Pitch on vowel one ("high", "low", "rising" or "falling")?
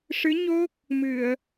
rising